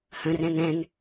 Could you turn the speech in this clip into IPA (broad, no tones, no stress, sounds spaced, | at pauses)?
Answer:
h ə̃ r ɛ̃ ŋ ɛ̃ ŋ